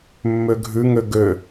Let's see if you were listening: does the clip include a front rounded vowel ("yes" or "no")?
yes